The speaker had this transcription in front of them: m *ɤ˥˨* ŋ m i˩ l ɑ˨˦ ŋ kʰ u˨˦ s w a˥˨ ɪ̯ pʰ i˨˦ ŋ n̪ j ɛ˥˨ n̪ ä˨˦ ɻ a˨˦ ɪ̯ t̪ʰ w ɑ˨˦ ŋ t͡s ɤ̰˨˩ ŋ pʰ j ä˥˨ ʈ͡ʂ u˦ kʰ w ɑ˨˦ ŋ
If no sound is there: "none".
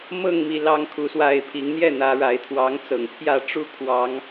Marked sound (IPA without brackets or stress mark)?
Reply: ɤ˥˨